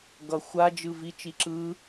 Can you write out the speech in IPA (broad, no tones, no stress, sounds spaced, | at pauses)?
ɡ ʌ xʷ a d͡ʒ ɯ v i t͡ʃ i ǁ ɯː